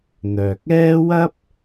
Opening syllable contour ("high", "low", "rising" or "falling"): low